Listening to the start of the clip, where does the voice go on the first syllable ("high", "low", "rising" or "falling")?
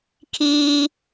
high